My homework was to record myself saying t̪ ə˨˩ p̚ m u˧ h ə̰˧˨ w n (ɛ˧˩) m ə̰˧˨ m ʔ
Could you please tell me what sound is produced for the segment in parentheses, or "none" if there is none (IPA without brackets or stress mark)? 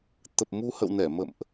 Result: ɛ˧˩